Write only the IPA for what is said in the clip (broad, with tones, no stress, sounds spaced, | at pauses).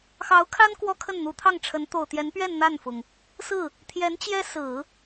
x ɑ˧˥ ʊ̯ kʰ a˥ n k w ɔ˥ kʰ ə˥˩ n n̪ u˧˥ t̪ʰ ɑ˥˩ ŋ ʈ͡ʂʰ ə˧˥ n t̪ o˨˩ ʊ̯ t̪ j ɛ˧˥ n p ɥ ɛ˥˧ n n̪ a˥˩ n f ʊ˩ ŋ | s ɹ̩˥˩ | t̪ʰ j ɛ˧˥ n t͡ɕ j ɛ˥ s ɹ̩˨˩˦